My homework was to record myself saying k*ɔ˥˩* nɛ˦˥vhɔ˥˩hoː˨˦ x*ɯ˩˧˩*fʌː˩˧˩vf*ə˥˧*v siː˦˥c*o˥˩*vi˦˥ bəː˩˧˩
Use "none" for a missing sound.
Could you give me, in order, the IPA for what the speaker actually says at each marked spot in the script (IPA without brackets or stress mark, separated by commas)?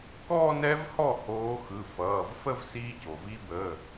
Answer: ɔ˥˧, ɯ˩˧˩, ə˥˧, o˩